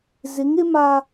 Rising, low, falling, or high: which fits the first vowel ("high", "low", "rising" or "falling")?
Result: rising